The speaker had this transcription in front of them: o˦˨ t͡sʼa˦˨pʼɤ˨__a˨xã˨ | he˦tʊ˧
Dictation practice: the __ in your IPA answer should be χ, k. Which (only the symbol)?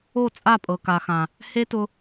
k